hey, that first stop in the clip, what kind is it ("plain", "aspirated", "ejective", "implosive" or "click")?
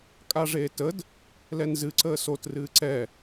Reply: ejective